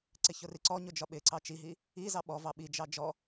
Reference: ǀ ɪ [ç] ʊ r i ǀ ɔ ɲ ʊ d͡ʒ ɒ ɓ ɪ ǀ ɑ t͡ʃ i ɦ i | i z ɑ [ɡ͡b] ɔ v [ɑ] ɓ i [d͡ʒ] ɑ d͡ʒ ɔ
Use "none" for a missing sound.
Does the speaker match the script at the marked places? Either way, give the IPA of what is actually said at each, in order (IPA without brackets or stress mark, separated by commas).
ç, ɓ, ɑ, d͡ʒ